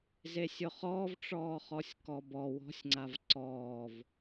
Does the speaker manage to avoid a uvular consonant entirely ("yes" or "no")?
no